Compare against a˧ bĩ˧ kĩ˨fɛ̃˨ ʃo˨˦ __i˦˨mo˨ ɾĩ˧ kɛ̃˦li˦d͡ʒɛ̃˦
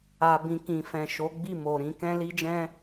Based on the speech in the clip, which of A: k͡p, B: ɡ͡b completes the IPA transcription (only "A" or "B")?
B